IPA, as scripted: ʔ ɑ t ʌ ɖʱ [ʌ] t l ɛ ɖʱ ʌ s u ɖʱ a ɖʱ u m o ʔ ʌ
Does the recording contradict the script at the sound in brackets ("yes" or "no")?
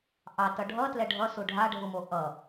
no